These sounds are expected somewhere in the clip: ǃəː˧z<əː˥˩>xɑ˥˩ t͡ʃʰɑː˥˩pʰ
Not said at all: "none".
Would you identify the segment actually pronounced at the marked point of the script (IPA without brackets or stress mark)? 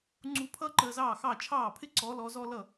ɑː˥˩